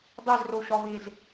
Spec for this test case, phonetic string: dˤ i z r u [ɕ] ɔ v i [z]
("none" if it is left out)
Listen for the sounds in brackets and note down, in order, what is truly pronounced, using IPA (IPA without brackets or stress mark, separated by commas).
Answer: ɕ, z